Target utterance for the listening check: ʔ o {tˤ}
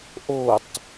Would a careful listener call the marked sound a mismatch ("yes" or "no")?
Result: no